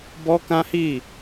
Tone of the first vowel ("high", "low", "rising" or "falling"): high